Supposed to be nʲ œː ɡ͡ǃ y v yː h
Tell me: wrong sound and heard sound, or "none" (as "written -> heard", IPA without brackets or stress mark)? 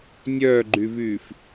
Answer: h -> f